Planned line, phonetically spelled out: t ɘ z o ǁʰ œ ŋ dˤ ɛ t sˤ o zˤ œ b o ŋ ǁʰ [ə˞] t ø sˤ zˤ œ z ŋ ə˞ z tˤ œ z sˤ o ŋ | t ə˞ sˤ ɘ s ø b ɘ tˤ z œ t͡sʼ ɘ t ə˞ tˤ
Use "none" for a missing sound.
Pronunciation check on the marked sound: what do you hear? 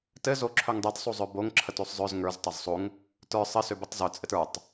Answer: ə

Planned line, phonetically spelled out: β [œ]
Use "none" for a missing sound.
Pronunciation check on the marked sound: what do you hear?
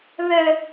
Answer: œ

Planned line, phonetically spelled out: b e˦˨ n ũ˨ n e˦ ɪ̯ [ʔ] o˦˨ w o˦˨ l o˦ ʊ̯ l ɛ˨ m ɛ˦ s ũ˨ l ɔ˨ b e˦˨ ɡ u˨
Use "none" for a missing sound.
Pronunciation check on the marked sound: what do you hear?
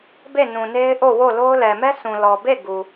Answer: ʔ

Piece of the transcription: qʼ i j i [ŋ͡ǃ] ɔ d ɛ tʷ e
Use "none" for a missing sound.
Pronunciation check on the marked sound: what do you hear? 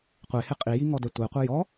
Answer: ŋ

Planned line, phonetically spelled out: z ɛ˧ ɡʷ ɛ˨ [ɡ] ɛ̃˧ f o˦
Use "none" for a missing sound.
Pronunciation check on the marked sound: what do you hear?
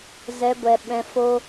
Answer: ɓ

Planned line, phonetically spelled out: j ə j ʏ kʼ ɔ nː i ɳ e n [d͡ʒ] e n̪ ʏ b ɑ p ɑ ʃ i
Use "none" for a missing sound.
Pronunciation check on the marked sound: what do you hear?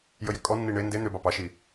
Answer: d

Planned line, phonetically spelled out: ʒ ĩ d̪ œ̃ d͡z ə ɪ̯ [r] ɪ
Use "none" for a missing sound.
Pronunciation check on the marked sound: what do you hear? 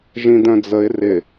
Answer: r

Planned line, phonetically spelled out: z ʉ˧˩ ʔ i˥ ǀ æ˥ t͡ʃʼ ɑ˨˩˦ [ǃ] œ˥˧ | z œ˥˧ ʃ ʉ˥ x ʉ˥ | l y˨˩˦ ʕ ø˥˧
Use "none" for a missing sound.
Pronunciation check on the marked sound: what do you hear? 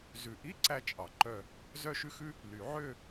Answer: ǃ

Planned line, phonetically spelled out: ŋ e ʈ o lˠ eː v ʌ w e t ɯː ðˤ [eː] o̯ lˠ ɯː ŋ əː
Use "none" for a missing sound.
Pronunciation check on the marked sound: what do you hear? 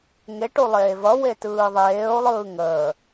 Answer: eː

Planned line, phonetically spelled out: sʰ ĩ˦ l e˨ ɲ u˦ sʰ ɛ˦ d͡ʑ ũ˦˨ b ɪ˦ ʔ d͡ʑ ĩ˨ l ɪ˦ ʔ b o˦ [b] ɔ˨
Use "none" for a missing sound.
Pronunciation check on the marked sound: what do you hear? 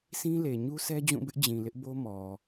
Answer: m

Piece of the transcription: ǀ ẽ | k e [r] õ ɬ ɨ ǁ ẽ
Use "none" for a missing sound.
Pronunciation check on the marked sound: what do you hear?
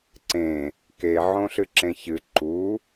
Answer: ʕ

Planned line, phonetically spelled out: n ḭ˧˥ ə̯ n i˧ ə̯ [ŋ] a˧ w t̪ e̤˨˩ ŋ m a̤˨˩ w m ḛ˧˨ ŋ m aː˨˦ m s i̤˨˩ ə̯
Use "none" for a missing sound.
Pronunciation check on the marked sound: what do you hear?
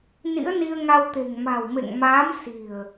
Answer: ŋ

